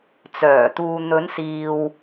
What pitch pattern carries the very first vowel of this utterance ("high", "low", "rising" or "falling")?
low